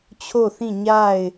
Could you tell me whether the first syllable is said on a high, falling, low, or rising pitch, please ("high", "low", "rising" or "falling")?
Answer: falling